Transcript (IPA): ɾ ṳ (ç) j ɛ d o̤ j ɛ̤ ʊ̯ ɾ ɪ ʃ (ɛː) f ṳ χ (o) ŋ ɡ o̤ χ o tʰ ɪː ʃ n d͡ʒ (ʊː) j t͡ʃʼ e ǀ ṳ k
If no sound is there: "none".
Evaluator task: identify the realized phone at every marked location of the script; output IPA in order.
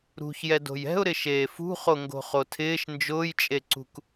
ç, eː, o, ʊː

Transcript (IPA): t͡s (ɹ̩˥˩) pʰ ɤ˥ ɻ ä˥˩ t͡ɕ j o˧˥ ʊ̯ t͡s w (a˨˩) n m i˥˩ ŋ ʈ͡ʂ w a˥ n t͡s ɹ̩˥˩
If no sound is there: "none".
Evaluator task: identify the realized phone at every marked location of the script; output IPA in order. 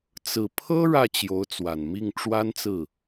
ɹ̩˨˩, a˨˩

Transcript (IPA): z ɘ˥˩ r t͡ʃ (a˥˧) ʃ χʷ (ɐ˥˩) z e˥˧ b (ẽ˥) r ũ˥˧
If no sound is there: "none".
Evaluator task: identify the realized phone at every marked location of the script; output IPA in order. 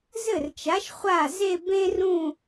a˨˥, a˥˩, ẽ˥

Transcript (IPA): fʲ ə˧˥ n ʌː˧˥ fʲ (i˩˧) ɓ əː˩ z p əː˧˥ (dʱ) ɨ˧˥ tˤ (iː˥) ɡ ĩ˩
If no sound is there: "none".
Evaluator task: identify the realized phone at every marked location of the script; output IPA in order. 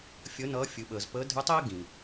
ɨ˩˧, dʱ, iː˥

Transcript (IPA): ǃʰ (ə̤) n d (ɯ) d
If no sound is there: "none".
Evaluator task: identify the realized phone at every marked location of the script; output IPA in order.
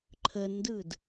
ə, ɯ

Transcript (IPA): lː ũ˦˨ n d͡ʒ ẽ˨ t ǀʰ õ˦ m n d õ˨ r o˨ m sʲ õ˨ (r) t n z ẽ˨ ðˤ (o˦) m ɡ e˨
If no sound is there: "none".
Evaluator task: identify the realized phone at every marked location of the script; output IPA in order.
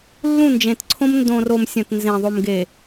none, o˨

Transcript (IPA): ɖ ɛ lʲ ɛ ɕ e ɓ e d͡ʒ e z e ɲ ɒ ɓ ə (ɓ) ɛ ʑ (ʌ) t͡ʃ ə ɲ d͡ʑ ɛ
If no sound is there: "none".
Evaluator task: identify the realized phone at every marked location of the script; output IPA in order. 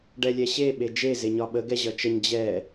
ɡ, ʌ

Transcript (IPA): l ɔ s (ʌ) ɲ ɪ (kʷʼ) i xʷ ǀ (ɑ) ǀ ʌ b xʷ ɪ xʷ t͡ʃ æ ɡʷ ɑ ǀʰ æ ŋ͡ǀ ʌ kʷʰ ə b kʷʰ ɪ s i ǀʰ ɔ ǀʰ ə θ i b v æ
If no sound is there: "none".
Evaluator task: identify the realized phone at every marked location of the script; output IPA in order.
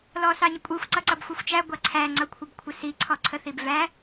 ɑ, kʷʼ, ʌ

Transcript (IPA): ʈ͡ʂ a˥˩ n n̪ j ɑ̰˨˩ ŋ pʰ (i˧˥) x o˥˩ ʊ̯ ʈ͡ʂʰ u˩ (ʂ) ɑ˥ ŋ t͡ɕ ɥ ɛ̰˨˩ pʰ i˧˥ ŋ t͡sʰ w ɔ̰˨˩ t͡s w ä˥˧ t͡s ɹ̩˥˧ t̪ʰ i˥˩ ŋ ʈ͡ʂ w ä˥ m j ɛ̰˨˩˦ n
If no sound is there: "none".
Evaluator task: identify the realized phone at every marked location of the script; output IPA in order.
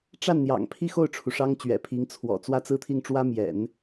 i˥˧, ʂ

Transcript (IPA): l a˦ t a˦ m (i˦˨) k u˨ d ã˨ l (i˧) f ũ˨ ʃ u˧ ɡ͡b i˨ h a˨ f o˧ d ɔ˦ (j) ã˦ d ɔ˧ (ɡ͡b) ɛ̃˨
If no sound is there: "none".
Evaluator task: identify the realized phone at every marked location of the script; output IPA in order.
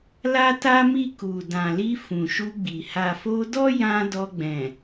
i˦˨, i˧, j, ɡ͡b

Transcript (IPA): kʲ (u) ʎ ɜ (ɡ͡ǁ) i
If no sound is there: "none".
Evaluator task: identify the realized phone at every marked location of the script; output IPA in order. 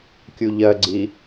u, ɡ͡ǀ

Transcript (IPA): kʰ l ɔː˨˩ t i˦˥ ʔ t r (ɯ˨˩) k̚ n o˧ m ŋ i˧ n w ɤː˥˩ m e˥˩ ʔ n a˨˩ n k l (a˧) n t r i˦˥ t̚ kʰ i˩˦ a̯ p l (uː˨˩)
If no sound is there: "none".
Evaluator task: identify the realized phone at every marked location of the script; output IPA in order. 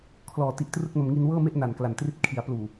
ɯ˥˩, a˨˩, uː˨˩

